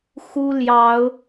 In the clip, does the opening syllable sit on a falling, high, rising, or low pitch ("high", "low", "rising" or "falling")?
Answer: high